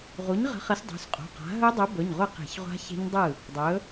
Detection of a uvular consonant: present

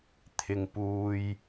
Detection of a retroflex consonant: absent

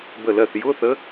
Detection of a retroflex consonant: absent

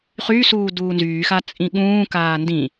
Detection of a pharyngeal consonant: absent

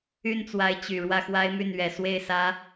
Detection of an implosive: absent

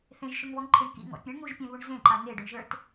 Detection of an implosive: absent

